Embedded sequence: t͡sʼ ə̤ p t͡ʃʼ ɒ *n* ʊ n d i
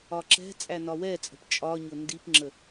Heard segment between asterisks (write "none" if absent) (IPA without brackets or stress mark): ɲ